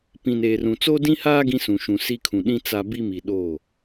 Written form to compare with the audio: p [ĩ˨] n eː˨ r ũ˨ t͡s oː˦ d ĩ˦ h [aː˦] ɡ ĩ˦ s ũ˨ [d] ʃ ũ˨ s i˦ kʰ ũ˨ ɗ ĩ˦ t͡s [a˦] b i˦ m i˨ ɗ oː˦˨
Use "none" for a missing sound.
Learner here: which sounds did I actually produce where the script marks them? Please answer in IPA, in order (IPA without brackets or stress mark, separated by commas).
ĩ˨, aː˦, none, a˦